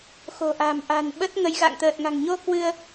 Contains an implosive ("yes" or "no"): yes